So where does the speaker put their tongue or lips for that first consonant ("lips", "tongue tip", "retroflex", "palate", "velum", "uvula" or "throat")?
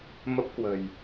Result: lips